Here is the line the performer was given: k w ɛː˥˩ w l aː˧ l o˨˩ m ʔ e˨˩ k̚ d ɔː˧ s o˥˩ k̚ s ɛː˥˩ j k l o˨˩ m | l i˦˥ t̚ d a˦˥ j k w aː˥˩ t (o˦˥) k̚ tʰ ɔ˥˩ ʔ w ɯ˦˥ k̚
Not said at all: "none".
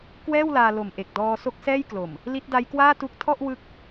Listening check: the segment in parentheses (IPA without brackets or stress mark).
u˦˥